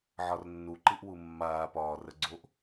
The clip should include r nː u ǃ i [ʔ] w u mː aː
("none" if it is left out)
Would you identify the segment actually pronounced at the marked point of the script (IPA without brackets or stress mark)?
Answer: ʔ